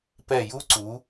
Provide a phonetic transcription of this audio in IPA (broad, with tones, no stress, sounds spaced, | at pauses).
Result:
p ɛ˧˩ j u˥ ǀ u˩˧